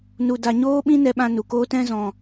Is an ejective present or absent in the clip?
absent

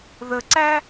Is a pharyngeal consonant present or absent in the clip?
absent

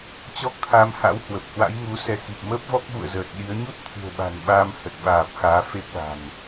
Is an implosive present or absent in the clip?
present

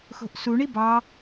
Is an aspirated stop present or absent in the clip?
absent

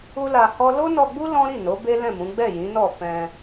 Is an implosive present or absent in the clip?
absent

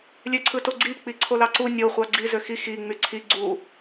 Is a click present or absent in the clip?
present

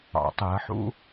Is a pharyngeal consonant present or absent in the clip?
present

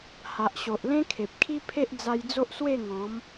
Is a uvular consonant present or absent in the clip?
absent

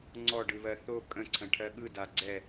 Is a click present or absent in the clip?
present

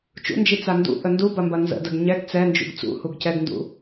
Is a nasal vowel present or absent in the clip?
absent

